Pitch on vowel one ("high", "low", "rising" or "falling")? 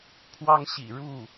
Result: high